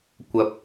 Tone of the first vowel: low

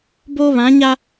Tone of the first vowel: high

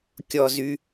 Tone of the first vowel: low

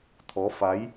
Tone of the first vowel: rising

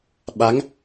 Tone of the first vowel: rising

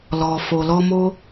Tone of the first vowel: low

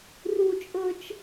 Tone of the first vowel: high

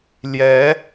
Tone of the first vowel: rising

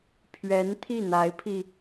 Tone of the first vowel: rising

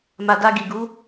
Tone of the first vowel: low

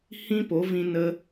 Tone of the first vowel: high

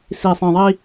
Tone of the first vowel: low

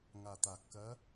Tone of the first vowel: low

